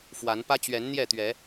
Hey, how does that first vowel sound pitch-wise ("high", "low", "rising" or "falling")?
rising